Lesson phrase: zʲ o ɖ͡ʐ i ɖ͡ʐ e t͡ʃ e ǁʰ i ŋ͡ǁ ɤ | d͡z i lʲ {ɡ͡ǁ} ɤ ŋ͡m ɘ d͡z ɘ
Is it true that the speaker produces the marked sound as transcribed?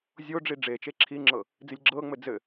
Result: yes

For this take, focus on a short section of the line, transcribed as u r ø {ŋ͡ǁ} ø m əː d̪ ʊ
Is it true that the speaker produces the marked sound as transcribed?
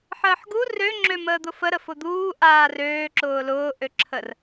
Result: yes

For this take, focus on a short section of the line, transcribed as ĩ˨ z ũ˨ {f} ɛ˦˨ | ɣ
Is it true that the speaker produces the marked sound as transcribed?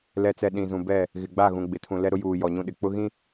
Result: no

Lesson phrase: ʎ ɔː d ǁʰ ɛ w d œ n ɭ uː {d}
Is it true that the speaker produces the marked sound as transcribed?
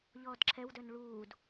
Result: yes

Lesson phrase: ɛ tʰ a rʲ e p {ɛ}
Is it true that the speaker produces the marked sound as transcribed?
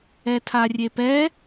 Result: yes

